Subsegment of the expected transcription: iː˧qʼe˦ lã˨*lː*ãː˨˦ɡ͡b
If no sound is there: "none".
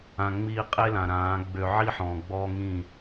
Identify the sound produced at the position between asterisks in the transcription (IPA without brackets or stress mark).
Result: ɾ